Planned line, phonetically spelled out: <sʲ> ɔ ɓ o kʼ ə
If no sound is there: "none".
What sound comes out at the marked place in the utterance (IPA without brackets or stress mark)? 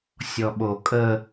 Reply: sʲ